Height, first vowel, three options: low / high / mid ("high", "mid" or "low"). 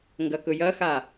low